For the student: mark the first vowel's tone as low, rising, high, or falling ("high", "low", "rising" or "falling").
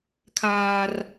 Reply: high